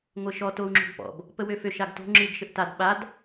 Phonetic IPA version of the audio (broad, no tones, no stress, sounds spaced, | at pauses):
ŋʷ ɘ ʃ ɔ t o u̯ ŋ͡ǁ o̤ ɡ p ɔ̰ b | p ə w ø f ø ʃ a ɡ t o̤ ŋ͡ǁ ɨ ɡ ʃ ɘ ʔ t a d ɓ a d